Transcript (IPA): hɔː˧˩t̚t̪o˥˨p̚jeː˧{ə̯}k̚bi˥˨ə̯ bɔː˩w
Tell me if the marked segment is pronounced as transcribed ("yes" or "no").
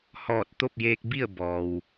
no